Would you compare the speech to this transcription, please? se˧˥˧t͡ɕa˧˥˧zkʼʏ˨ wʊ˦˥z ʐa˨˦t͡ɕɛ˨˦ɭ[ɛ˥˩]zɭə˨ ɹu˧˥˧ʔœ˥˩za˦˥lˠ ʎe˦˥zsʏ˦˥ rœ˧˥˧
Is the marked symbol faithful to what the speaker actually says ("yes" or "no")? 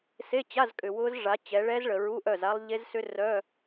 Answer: no